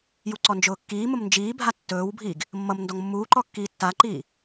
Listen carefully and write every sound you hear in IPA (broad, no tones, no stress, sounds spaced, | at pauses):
j u ǀ ɔ n d͡ʒ ʊː kː iː m ʊ m n d͡ʒ iː bʱ a tː ɵː w bʱ iː ɡ | mː ʌ m n d ɔ ŋ mː uː ǃ ɔ kː iː tː a ǃ iː